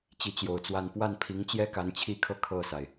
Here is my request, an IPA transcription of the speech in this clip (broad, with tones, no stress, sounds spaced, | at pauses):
t͡ɕ i˧˥ t͡ɕ j o˨˩ ʊ̯ t͡s w a˥˧ n p w a˥˩ n pʰ i˧˥ ŋ t͡ɕ j ɛ˥ k a˧˥ n t͡ɕʰ i˥˧ kʰ ɤ˥˧ kʰ ɤ˥˩ s a˩ ɪ̯